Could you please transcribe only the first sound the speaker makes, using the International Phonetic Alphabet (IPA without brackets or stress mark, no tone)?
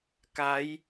k